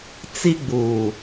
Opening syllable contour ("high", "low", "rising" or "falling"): high